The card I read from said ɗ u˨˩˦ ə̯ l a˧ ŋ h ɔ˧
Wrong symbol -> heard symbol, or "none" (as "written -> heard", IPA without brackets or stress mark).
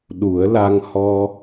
none